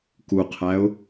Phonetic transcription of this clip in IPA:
k u qʰ æ ʊ̯

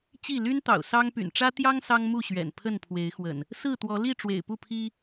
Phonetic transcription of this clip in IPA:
t͡ɕ i˥˨ l y˦ n t̪ ɑ̰˨˩ ʊ̯ s ɑ˦ ŋ p y̰˨˩ n ʈ͡ʂ ä˦ t̪ j ɑ˦ ŋ s ɑ˦ ŋ m u˥˨ ɕ ɥ ɛ̰˨˩ n pʰ ə˥˨ n pʰ w e˨˦ ɪ̯ x w ə̰˨˩ n | s ɹ̩˥˨ t̪ w ɔ˨˦ l i˥˨ ʈ͡ʂ w ḛ˨˩ ɪ̯ p u˥˨ pʰ i˦

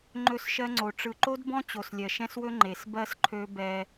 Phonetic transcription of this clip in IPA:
ŋ͡ǃ ɵ˦˨ s ʃ ɜ˦ ŋ͡ǀ o˨ ʈ͡ʂ ɯ˨ ǃ o˦ d b ɔ̃˦ t͡ɕ o˨ s lʲ ɜ˨ ʃ ɛ̃˦ s w ɵ˦ ŋ͡ǃ e˨ s b ɜ˦ s ǃʰ ø˦ b ɛ˦

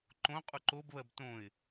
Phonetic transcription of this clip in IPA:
ǃ õ qʼ u ǃ o b β ɜ b t õ ɪ̯

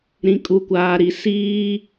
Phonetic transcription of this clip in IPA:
ɾ ĩ˨ kʼ u˨ kʷ aː˨ ɾ i˨ s iː˦

